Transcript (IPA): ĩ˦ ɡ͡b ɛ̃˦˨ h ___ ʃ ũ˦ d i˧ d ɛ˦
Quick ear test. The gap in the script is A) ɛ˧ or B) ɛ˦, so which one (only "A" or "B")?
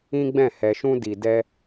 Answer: A